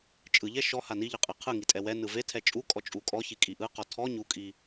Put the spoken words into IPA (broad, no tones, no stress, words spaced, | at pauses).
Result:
t͡ʃʼɯʎɛ ʃɔ haniʎɯqʼe qʰɯŋitʼɛ wɛ nɯvetʰɛ t͡ʃʼukʼɔ t͡ʃʼukʼɔ çikʼiʔɯ qɔtʰɔ ɲukʼi